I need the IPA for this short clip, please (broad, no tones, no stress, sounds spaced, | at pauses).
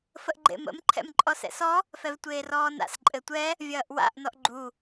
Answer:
f ə ʔ ɡ͡ǃ ḛ m ə̰ m ǃʰ ɛ̰ m ǃʼ ɔ s ɛ̰ s ɔ | f ɛ v tʷ eː r ɔː n a̰ s ǃʼ ɘ tʷ ɛ | vʲ ɐː ʔ w a̰ ʔ n ɔ ʔ ɡ͡ǃ u